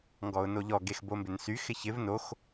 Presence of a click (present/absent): absent